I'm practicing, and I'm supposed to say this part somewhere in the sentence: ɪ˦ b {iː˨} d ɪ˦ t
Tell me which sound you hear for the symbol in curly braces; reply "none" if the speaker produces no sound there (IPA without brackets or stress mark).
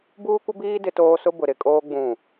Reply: iː˦